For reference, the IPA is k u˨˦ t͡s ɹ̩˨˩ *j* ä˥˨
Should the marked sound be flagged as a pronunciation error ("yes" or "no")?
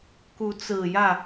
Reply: no